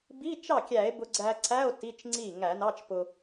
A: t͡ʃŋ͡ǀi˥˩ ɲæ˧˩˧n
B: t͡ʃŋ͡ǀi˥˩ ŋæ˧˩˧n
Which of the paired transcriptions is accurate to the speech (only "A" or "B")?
B